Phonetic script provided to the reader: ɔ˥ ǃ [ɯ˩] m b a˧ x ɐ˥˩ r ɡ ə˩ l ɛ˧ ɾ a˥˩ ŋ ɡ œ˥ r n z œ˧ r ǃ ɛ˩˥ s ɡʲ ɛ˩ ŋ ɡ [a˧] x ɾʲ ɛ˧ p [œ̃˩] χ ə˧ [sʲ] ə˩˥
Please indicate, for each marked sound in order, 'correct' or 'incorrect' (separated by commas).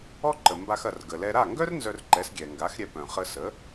incorrect, incorrect, correct, incorrect